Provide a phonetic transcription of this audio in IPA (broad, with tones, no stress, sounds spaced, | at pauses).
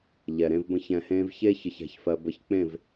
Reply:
ʎ ɛ˨ ɾ ẽ˧ v b ə̃˧ ç ɛ̃˨ h ẽː˧ v ç e˦ ç ə˧ ç æ̤˧ ç f ɜ˧ b ə˧ ç k͡p ẽ˦˨ v